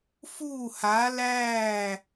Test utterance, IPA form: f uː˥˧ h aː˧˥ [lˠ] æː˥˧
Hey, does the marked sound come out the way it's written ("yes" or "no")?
no